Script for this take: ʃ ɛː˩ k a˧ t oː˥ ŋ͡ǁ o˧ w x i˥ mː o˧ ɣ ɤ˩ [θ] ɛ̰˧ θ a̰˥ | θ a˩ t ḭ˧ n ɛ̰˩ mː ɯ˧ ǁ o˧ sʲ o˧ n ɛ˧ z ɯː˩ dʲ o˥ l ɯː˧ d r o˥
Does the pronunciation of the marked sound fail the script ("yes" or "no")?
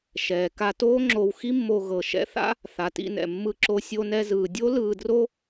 yes